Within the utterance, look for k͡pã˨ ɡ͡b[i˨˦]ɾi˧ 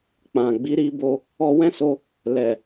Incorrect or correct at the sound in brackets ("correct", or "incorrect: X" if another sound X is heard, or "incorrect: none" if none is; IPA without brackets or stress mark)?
correct